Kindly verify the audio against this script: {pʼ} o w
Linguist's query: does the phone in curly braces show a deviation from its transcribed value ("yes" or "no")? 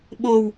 yes